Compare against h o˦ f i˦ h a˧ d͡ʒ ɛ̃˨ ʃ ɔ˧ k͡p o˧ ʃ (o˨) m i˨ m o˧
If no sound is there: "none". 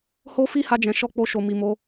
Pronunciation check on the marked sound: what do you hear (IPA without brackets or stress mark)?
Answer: o˨